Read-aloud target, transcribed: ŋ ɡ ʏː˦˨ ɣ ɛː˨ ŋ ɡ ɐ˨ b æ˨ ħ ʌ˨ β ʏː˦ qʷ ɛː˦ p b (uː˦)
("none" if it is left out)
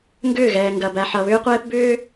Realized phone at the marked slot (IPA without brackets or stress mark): ʏː˦